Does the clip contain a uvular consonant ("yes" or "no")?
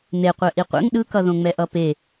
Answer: yes